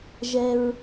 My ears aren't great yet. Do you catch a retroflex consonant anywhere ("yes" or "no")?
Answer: no